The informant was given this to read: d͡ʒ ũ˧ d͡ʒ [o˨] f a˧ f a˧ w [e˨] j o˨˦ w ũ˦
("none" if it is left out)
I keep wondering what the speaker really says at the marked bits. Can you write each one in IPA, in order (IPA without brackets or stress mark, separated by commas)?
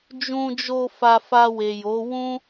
o˧, e˨